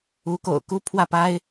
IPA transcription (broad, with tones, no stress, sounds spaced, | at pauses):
u˧˥ k o̰˨˩ ʊ̯ k u˥˧ pʰ w ä˥˩ p a˥ ɪ̯